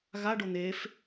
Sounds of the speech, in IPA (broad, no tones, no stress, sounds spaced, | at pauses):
ɣ a ɖ o n̪ eː f